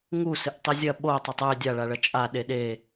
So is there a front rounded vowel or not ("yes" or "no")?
no